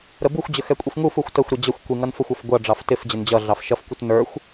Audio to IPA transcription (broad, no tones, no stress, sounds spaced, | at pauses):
ɾ ə b u xʷ d͡ʑ ə x ɛ kʷʼ i f ŋ u f u xʷ t ə xʷ ɾ i d͡ʑ ʌ xʷ kʷ i ŋ ʌ n f ʊ xʷ ɑ f ɡʷ ʌ ɖ͡ʐ ɑ f t ɪ f d͡ʑ ɪ n d͡ʑ ʌ ɮ ɑ f ʃ ʌ f kʷ ɪ t n ə˞ xʷ